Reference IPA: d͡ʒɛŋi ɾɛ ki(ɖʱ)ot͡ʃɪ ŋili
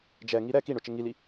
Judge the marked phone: incorrect: ɳ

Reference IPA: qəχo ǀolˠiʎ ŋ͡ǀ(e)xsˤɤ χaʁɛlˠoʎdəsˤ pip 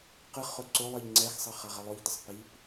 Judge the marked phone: incorrect: ɛ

